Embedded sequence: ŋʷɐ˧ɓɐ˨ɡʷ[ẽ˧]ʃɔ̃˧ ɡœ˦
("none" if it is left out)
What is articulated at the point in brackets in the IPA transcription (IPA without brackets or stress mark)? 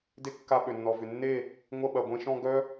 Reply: ẽ˧